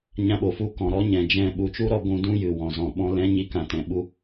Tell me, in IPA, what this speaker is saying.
ɲ ã˧ ɓ o˨ f u˧ k ɔ̃˨ ɾ ɔ˦ ɲ ɛ̃˨ d͡ʒ ɛ̃˦˨ ɓ u˨ t͡ʃ u˦ ɾ ɔ˧ ɡʷ ũ˧ d ũ˦ j ɨ˨ w ɔ̃˨ z ɔ̃˨ ɓ ɔ̃˧ l ɛ̃˨˦ ɲ i˨ k ã˨ t ɛ̃˨ ɓ u˧

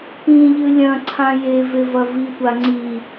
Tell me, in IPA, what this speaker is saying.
p ĩ ʎ ɨ lʲ ɐ̃ ǀʰ ã j e v e v ɐ v i tʷ a ŋ͡ǀ i

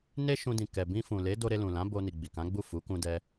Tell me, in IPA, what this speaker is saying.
n e˦ ʃ ũ˧ d ĩ˨ k ɛ˨ b ĩ˧ f ũ˨ l e˨˦ d o˧ ɾ e˧ l ũ˨ l ã˨˦ b o˧ n i˨ ɡ͡b i˨ k ã˨˦ ɡ͡b u˦˨ f u˨˦ k ũ˧ d ɛ˧

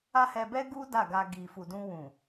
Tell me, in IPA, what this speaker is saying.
a˦ h ɛ˧ b ɛ˦ ɡ u˦ d a˦˨ ɡ a˧ ɡ i˨ f u˨ d ũ˧ w ũ˨

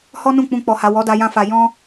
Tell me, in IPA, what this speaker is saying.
h ɔ˦ n ũ˦˨ k͡p ũ˧ k͡p ɔ˨ h a˨ w ɔ˨˦ d a˧ j ã˧ f a˨ j ɔ̃˧

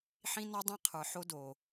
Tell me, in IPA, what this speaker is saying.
ħ ĩ˦ n ɔ˦ dˤ ĩ˦ qʰ ə˞˨ ħ o˦ d o˨

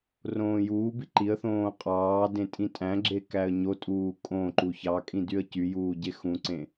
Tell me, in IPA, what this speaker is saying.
r õː j uː b i ǃ i ə̯ θ õː qʼ ɑː d ẽ tʼ ĩ tʼ æ̃ ɡ͡ǁ e k æ ə̯ ɲ o tʼ uː kʼ õ ǃ u ç ɑ kʼ ĩ d y ə̯ c y j uː ɟ e x ũ ǀ ẽ

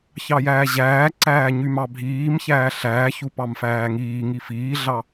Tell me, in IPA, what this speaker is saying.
ç ɑ j æː ʑ æː ǀ æː ɲ y m ɑ bʱ iː m ç æː ɬ æː ç u p ɑ m f æː ŋ iː ŋ i f iː ɮ ɑ

